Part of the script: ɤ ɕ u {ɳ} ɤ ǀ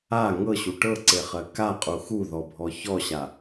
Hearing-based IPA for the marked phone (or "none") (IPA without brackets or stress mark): ʈ